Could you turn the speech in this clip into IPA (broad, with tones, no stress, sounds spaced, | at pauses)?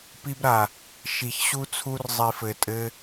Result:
p i˦ b ɾ a˧ | ʃ i˧ ç ɕ u˦ t͡sʰ u˦ r zˤ i˧ f ɘ˧ tʼ ɘ˦